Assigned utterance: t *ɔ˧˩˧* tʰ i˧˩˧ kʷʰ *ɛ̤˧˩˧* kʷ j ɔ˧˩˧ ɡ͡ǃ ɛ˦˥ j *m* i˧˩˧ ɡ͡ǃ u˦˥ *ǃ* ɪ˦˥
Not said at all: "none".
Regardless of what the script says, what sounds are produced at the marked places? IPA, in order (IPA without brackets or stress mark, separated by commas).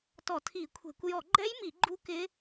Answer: ɔ˧˩˧, ɛ̤˧˩˧, m, k